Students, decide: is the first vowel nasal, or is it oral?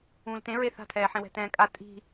nasal